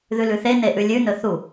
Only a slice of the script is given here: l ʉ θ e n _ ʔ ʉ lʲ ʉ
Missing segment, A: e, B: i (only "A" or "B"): A